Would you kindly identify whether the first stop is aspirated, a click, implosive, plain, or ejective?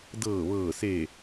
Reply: plain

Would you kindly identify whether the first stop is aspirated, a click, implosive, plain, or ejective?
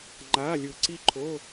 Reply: click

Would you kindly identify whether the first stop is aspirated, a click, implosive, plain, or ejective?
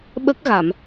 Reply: implosive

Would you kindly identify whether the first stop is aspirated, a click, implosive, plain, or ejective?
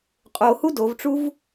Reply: ejective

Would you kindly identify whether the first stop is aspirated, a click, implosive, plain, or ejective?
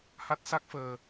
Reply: plain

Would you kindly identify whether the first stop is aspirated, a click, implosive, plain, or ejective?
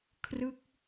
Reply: aspirated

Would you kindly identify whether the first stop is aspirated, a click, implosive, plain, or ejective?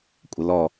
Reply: ejective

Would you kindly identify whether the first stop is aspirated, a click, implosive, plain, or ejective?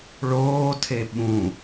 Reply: aspirated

